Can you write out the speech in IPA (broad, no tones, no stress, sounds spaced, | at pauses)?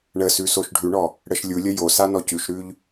ɳ ə s ʉ s o ʃ ɖʱ ʉ ɳ ɔ | ɽ ə ʃ lʲ u lʲ ə j o s a n ɔ c ʉ ʃ ɾ ʉ ʎ